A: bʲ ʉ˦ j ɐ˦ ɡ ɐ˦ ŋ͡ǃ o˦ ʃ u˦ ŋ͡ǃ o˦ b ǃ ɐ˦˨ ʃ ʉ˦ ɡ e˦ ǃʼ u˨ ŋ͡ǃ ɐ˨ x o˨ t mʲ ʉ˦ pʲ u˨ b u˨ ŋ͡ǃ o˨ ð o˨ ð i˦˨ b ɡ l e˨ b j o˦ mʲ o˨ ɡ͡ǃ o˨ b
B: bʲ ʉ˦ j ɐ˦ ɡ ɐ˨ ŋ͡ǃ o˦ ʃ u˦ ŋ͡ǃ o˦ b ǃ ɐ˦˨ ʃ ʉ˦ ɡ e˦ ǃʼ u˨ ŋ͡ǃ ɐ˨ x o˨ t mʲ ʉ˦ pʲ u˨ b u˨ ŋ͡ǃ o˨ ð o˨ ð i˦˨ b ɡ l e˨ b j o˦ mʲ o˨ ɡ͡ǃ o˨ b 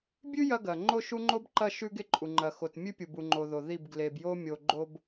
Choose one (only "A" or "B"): B